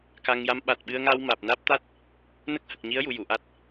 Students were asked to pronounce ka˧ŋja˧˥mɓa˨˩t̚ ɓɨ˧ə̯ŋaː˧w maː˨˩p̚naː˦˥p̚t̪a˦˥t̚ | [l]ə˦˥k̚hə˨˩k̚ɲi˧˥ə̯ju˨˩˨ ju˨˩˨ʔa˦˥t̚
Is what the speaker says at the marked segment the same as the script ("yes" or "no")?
no